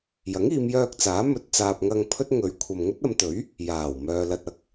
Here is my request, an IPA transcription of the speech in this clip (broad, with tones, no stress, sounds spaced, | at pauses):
j ɐ˨˥ ŋ iː˨˧ m j œː˧ k̚ t͡s aː˨˥ m ɵ˨ t̚ t͡s aː˧ p̚ ŋ ɐ˧ ŋ pʰ ɵ˥ t̚ ŋ ɵ˨˧ ɥ kʷʰ ɐ˨ m ŋ ɵ˥ t̚ ɐ˨˧ m t̪ ɵ˨˥ ɥ | j aː˨˩ w m œː˨ l ɐ˨ t̚ ɐ˨˥ k̚